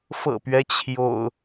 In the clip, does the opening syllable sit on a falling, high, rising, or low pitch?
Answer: low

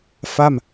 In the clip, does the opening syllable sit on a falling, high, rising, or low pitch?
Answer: falling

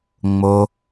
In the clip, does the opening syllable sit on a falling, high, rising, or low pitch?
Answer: low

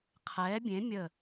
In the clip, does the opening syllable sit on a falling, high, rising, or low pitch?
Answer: rising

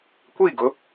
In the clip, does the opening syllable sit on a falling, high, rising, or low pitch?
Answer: falling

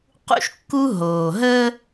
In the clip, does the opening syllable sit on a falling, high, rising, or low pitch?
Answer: high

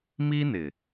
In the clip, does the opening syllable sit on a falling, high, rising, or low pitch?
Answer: high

